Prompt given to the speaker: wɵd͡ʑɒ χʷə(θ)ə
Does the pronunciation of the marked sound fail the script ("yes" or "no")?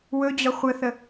no